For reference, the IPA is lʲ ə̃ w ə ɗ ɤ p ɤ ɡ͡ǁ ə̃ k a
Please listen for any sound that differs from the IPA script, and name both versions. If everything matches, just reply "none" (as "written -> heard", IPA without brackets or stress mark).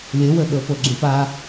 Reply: k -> p